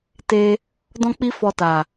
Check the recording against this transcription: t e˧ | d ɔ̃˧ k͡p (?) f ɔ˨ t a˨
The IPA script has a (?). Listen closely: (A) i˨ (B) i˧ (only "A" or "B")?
B